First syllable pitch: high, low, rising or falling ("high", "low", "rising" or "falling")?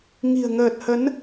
low